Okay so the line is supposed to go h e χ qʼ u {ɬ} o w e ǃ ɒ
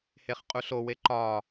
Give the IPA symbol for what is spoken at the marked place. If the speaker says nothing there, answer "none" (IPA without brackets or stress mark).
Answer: ɬ